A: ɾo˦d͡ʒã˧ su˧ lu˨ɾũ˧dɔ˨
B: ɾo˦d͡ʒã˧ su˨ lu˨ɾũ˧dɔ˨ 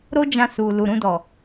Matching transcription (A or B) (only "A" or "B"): B